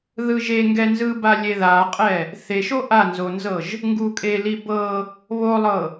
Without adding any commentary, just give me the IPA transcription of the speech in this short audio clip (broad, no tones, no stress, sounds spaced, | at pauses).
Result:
ð ɯ ʒ e ŋ ɡ ɛ n z ɯ b a lʲ e ð a qʼ ɛ | θ e ʃ o ʔ a n z o n z ɤ ʒ | ŋ ɡ u kʼ e l i b ɤ | β o lˠ ɤ